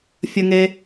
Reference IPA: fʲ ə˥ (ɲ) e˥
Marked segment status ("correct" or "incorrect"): incorrect